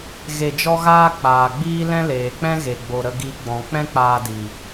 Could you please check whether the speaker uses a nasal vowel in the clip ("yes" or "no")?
yes